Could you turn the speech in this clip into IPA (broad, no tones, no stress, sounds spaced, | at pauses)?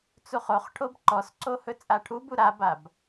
t͡s u χ o χ ʈʰ o b ǃ ɔ s ǀ o h ɵ t͡sʼ a ʈʰ u b u ɾ a b a b